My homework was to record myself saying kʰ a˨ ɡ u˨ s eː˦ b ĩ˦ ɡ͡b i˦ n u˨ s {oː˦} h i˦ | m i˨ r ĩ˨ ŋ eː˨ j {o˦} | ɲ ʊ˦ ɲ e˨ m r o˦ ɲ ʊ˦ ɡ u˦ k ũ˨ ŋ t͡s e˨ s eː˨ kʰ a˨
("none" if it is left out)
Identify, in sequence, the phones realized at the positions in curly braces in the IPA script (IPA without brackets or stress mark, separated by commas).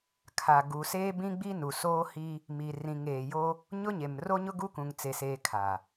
oː˦, o˦